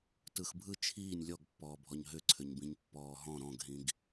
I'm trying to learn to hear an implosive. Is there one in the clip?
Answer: no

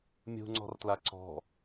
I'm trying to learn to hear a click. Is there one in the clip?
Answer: yes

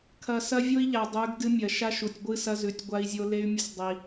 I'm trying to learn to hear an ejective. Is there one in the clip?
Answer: no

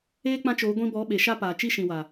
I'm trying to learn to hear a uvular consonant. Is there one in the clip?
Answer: no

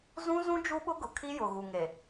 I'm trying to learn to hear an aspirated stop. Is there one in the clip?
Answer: yes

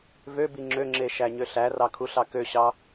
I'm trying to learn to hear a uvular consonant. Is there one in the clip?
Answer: no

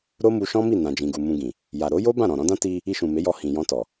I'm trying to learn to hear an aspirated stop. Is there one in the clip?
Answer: no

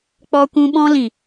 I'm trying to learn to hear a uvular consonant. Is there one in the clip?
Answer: no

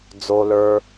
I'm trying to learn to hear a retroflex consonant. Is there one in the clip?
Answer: no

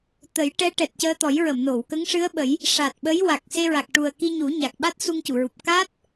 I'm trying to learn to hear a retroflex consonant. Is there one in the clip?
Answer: yes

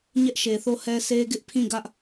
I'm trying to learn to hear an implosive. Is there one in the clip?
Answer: no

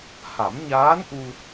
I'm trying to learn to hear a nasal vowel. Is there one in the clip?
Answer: no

